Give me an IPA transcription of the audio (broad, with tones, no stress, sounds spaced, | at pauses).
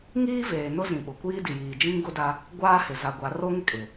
ŋ iː˦ v eː˨ n ʊ˦ z ĩ˨ ɓ ʊ˨ kʷ iː˦ d i˨ j iː˨ d͡ʒ ĩ˦ ŋ ɡ ʊ˦ d a˦ | ɡʷ aː˦ h ɪ˨ z a˨ ɡʷ a˨˦ r o˦ ŋ ɪ˦ kʼ ɪ˨